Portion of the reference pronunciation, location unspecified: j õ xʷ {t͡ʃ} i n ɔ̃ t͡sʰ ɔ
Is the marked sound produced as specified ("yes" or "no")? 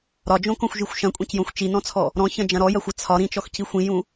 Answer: yes